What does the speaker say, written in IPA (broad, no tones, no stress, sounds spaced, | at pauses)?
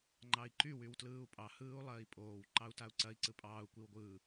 ŋ͡ǃ ɑ i̯ ǃ y w y w t l ɯː u̯ pʼ ɑ h ɯː u̯ lˠ ɐː i̯ pʼ oː w ǃ ɑ u̯ t a u̯ ǀ ɐ i̯ ǀ ɯ pʼ ɑː u̯ kʷ i w ɡʷ ɯː